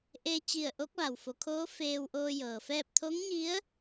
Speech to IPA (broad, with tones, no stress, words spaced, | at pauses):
ʔeː˧t͡ɕi˧˩ə̯ ʔo˧˥k̚ʋa˩wfo˩˧kʰoː˧˥ feː˧wʔoː˧ jɤː˩fɛː˥˨p̚ t̪ʰo˧˥ŋɲi˧˥ə̯